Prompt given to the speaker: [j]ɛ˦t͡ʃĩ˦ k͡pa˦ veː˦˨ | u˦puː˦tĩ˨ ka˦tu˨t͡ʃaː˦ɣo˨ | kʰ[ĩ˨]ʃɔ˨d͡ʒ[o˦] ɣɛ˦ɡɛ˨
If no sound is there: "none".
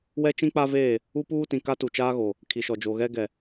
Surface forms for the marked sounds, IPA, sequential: w, i˨, o˨

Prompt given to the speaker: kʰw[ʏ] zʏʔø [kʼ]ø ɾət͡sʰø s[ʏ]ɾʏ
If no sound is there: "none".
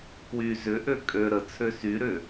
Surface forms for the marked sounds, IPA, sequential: y, kʼ, y

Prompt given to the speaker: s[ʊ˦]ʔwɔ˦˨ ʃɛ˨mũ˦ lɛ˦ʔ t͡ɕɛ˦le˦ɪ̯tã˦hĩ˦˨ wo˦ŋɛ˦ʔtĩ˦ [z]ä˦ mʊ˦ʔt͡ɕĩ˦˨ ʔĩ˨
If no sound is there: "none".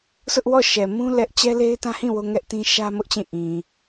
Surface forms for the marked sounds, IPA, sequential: ʊ˦, ʃ

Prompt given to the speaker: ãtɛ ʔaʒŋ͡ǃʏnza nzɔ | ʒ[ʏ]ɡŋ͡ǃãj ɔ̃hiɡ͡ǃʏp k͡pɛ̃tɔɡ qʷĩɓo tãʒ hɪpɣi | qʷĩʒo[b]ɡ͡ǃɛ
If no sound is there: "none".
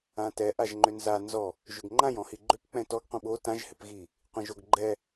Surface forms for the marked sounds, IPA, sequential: ʏ, ɡ

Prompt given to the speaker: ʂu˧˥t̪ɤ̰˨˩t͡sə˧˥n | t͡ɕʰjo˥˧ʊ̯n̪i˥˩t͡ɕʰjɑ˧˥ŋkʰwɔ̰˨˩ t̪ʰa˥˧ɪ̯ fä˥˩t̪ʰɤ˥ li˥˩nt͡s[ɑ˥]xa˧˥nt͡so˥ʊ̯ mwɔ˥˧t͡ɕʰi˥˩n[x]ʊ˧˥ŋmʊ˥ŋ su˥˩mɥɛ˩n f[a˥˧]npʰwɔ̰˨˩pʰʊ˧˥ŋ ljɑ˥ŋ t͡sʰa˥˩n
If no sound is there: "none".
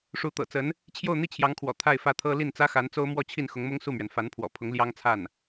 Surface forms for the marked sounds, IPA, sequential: ä˥, x, a˧˥

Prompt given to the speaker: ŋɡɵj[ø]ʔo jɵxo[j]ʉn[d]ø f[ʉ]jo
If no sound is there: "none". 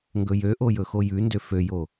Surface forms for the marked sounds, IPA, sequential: ø, j, d, ø

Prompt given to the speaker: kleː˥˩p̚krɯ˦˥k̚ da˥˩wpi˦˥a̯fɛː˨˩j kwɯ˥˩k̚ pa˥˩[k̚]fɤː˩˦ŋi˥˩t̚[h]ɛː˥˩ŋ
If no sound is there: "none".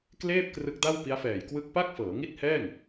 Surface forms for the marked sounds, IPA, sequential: k̚, h

